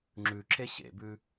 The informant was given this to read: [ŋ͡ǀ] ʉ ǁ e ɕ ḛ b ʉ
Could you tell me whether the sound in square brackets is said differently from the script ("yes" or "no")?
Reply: yes